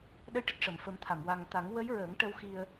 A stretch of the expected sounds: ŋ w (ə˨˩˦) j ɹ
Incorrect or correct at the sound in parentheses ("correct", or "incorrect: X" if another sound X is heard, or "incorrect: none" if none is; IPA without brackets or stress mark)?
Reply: incorrect: ə˧˥